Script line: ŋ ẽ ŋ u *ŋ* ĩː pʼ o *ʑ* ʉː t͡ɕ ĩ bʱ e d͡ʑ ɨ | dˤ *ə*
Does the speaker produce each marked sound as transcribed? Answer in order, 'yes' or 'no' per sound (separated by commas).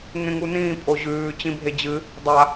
no, yes, no